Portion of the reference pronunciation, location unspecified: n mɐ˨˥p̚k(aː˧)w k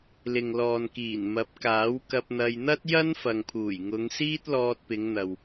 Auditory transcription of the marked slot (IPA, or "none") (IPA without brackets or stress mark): aː˨˥